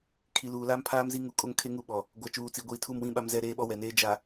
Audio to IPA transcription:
kʰ i˨ l uː˨ l aː˦ m pʰ aː˦ m z i˦ ŋ u˨˦ kʼ o˦ ŋ kʰ e˦ ŋ u˦˨ ɓ ɔ˨ | ɡʷ a˨ t͡ʃ uː˨ t͡s i˨ ɡʷ iː˨ tʰ u˦˨ m w ĩ˦ ɓ a˦ m z ɛ˦˨ ɾ eː˦ ɓ ɔ˦ w ɛ˨ n eː˦ d͡ʒ a˨

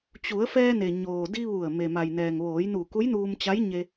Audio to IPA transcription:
t͡ɕ u˩˧ ə̯ f ɛː˧ n e˩ ɲ oː˩ d i˧ ʋ u˧˩ ə̯ m e˩ m a˩ j n ɛː˩ ŋ ʋ oː˩˧ j n u˧˩ k u˧˥ j n uː˧ m t͡ɕ a˧˥ j ɲ e˧

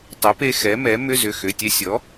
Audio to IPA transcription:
tˤ ʏ˩˥ p e˧ x ɛ˩˥ m ɛ˩˥ m ʏ˧˥˧ z ʏ˩˧˩ x ʏ˩˧˩ tʲ ɛ˧ sʲ ɔ˩˥

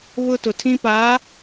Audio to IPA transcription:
β ʊ˦ t ʊ˨ tʰ ĩ˦ p aː˨˦

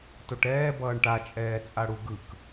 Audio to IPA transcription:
t o ʈ ɛː b ʌː ɳ ʈ a t͡ʃʼ ɛː t͡sʼ a ɽ u ɡ ɯ k

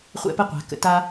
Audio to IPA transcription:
χʷ ɛ̰˥˧ p ə˥ qʷ a̤˨˩˦ k ə̰˨ t a˥

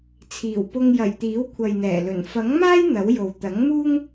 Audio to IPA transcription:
t͡sʰ iː˨˩ w p ʊ˧ ŋ j ɐ˨˩ j t̪ iː˨˥ w kʷʰ ɐ˨ j n̪ ɛː˨˩ l ɵ˨˩ n f ɐ˨˥ ŋ m aː˥ j n̪ ɐ˨˥ w j o˨ w t̪ ɐ˨˥ ŋ m uː˥ ŋ

